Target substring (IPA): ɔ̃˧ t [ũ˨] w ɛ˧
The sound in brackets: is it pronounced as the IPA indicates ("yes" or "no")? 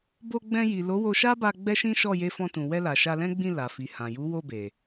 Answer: yes